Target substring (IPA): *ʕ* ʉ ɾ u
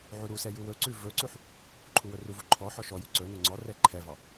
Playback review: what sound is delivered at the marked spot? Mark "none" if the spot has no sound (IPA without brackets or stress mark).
ʕ